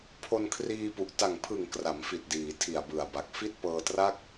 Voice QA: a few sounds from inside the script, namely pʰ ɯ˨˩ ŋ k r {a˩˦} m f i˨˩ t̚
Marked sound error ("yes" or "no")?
no